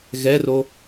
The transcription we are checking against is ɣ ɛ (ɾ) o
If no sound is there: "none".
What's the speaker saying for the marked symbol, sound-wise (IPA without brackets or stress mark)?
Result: r